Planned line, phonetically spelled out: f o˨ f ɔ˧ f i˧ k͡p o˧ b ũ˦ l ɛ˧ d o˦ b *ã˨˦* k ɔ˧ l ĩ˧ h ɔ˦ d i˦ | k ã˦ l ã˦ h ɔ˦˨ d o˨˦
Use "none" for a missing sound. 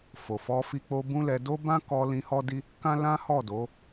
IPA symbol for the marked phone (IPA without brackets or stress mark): ã˦